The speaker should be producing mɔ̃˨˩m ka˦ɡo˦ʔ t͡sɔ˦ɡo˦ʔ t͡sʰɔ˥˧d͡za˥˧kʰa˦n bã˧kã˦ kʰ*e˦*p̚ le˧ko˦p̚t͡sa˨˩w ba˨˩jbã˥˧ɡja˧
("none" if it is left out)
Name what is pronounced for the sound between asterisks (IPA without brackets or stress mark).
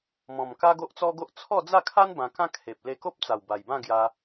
e˨